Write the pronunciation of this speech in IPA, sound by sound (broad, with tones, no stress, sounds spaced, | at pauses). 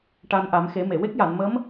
ʈ a˧ n ʔ a˨˩˦ m x e˨˩˦ m e˨˩˨ w e˦˥ k̚ j a˨˩˨ n m ə˧˥ m